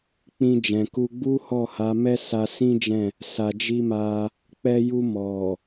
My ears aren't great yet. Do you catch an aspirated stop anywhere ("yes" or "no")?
no